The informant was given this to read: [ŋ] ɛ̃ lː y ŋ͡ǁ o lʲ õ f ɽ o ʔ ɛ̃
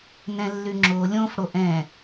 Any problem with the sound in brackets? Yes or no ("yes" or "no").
yes